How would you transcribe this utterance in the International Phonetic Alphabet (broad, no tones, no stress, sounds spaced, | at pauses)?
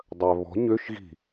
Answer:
dˤ œ β ɔ̤ ɲ ø ʃ ɣ i̤